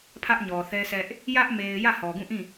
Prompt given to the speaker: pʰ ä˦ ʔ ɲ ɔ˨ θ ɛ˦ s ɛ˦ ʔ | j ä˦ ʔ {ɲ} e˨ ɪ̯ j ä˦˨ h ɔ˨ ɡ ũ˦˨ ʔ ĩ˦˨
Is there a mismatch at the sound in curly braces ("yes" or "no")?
yes